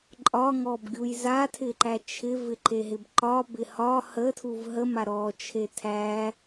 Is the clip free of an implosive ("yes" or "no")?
yes